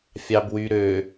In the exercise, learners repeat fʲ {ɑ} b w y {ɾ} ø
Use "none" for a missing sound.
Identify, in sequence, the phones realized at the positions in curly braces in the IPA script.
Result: ɑ, ɾ

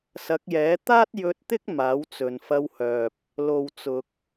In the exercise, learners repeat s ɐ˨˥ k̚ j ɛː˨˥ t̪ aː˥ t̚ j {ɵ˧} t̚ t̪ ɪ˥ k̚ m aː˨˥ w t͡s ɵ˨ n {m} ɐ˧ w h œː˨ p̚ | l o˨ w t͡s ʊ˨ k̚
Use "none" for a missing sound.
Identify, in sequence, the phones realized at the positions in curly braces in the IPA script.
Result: ɵ˧, f

